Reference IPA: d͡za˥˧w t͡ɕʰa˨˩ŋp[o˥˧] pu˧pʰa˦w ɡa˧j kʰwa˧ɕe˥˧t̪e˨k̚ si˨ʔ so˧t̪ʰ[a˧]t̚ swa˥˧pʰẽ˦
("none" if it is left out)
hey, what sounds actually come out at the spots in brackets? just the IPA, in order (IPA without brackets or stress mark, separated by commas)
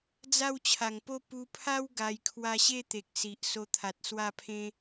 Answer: o˦, a˨